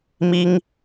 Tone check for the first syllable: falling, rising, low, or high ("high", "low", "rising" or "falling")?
high